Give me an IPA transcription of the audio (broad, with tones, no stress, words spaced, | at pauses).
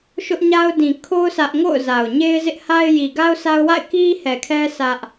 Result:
ʃʊ˦ʔɲa˦ʊ̯ dĩ˨ kʰo˦ʊ̯ sä˦ʔ ŋo̰˦˨ʊ̯ za˨ʊ̯ ɲe˦ɪ̯zɪ˦ʔ ha˦ɪ̯ ji˨ɡa˦ʊ̯sa˦ʊ̯wa̰˦˨ɪ̯ ki˦hɛ˨kʰɛ˦ sʰä˦ʔ